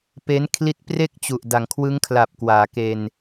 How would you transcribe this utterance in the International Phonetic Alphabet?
p e˦˥ n kʰ l i˦˥ t̚ p r e˥˩ k̚ t͡ɕ u˨˩ ʔ d a˩˦ ŋ kʰ w ɯ˦˥ ŋ kʰ l a˨˩ p̚ k w aː˩˦ k e˧ n

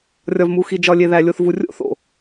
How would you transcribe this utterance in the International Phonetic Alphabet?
rʲ ɒ˨ v m u˨ x i˨ d͡ʒ ɒ˨ lʲ e˨ ð æ˨ lʲ o˨ θ v u˨ rʲ o̰˦ θ o̰˨

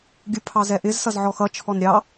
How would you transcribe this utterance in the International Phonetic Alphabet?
ɡʲ u pʰ ɑ z ɛ ʔ ɪ z s ʌ z ʕ ɔ x ʌ t͡ʃʰ ɔ n ɾʲ ɑ

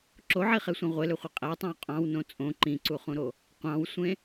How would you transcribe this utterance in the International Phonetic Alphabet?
ǁ o ʕ i χ e sʷ ĩ ʁʷ e l ø χʷ i qʼ æ tˤ ɑ̃ w qʼ ɑ̃ w n õ t͡sʼ õ ǃ ĩ ǀ u χ ũ ɾ o | qʷ ɑ̃ w sʷ ẽ

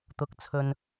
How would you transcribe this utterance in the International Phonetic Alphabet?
t̪ ʊ˨˥ k̚ t͡sʰ ɵ˨ n

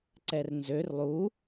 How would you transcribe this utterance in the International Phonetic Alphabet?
ǀ ɛ r n z ø r lˠ u

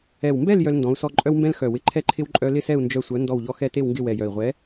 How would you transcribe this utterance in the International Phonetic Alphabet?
ɛ˨˩ w m b ɛ˥˨ l j œ˦ l n d ɔ̃˨˥ u̯ s ɔ˦ ǃʼ œ˦ w m b ɛ̃˦ l x œ˨˩ w ɪ˨˥ ǃʰ ɛ˥˨ ǃʰ ɪ˦ w ǃʼ œ˦ l ɪ˥˨ s ɛ˥˨ u̯ n d͡ʒ œ˦ sʷ œ˨˥ n d ɔ˥˨ w ʎ ɔ˦ x ɛ˥˨ t e˥˨ w ŋ ɡ ɪ˥˨ w ɛ˨˩ j œ˨˩ i̯ ʁʷ ɛ˨˥

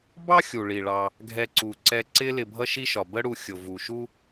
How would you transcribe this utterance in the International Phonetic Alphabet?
b ɑ˥ xʲ u˩ ɭ i˩ ɭ ɑ˨ | ɡʱ ɛ˨ ǀ u˩ ǀ ɛ˨ ǀ ɪ˦ l ɪ˨ bʱ ʌ˥ ʃ i˥ ʃ ɒ˩ b ə˦ ɽ u˨ xʲ ʊ˩ v u˩ ʃ u˦

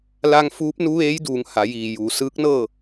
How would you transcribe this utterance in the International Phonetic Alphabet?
l a˧ ŋ f uː˧˥ p̚ n u˧˥ ʋ eː˧˥ j d uː˩˧ ŋ h a˩˧ j iː˩ j uː˩˧ s ɯː˧˥ k̚ n ɤː˥˨

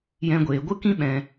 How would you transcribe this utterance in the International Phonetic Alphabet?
j ɛ̃˦ ɡʷ eː˧ ɡʷ ɨ˦ k ĩ˦ ɓ ɛ̃˧

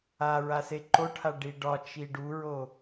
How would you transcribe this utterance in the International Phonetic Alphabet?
a ɹ a s e ǃ o ʈʰ a ɖ i ɖ ɒ t͡ʃ i ɖ u ɹ o

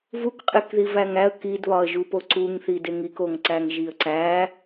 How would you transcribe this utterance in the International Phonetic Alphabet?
v u k qʼ e k ð i v æ ŋ æ ə̯ k i d β ɒ ə̯ ʒ u p o ǀ u ŋ θ i d e ŋ i k o ŋ ǀ æ ŋ ʒ i ə̯ ǀ æ

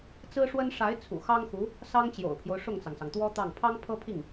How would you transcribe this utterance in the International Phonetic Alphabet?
t͡s ɹ̩˥ ʂ w ə˥ n ʂ a˧˥ ɪ̯ t͡sʰ ṵ˨˩ x ɑ˥ ŋ x u˧˥ | s ɑ˥ ŋ t͡ɕ j o̰˨˩ ʊ̯ pʰ j o˦ ʊ̯ ʂ ʊ˥˩ ŋ t͡s ɑ˩ ŋ s ɑ˩ ŋ t̪ w ɔ˥ t̪ ɑ˥˩ ŋ pʰ ɑ˥ ŋ pʰ ɤ˥ pʰ i˥˩ ŋ

